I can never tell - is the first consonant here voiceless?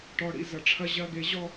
yes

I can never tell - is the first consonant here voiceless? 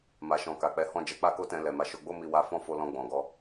no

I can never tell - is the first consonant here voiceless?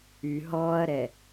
no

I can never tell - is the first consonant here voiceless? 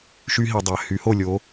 yes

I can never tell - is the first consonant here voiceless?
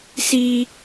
yes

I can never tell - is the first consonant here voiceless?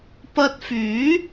yes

